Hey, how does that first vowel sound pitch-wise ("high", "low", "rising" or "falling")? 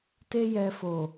high